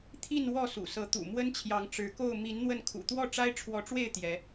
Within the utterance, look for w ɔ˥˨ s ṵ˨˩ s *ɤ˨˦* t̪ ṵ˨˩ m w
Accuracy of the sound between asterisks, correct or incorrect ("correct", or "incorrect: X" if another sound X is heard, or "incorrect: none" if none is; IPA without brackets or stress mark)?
correct